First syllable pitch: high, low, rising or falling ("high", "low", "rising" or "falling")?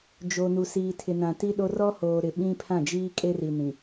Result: low